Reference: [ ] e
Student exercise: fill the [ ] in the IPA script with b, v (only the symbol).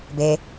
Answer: b